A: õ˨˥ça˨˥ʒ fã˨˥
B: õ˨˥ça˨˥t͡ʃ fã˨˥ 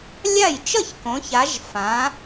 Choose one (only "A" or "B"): A